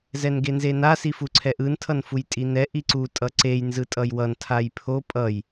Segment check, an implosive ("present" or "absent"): absent